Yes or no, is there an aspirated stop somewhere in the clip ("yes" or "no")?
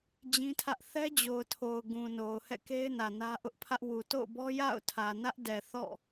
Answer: yes